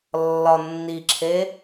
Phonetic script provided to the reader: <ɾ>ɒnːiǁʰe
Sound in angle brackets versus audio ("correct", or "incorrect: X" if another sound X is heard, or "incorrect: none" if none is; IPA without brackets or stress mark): incorrect: lː